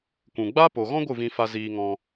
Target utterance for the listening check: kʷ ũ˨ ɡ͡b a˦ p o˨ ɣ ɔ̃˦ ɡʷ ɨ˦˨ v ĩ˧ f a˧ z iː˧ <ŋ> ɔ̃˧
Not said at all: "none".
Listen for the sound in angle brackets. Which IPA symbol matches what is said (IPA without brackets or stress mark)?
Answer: ŋ